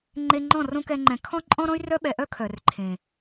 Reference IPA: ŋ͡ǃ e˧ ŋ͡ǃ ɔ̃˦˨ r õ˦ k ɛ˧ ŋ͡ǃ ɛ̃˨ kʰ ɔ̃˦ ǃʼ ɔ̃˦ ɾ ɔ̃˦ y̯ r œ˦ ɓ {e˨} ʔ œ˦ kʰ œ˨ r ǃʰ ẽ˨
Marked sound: incorrect: ɛ˨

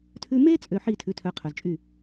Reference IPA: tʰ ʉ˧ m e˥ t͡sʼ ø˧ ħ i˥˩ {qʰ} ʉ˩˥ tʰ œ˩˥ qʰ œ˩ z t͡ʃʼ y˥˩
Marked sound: incorrect: tʰ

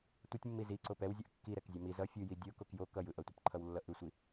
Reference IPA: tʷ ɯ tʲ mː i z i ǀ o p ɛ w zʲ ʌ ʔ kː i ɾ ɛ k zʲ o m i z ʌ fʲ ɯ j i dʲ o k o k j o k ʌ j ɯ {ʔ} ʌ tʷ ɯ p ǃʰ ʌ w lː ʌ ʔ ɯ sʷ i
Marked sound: correct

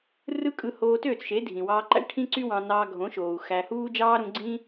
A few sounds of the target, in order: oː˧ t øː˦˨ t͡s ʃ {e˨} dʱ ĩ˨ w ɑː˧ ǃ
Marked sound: incorrect: e˨˦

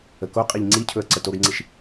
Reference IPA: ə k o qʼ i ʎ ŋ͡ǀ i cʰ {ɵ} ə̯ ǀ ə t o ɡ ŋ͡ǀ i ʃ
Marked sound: correct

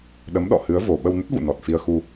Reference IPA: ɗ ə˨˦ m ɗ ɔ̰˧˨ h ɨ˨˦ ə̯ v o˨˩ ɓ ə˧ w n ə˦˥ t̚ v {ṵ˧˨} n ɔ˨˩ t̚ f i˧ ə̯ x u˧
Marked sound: correct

